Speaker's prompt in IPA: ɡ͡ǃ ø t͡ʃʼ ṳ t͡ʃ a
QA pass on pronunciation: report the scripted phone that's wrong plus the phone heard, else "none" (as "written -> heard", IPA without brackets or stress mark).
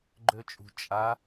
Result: t͡ʃ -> t͡ʃʼ